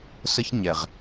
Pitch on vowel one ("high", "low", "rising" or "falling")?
high